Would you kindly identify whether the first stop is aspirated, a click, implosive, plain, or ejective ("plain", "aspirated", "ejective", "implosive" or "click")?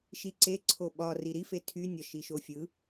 click